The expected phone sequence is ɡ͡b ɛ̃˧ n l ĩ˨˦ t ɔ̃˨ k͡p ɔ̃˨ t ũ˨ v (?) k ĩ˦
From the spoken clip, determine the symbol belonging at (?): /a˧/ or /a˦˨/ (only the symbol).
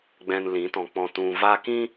a˧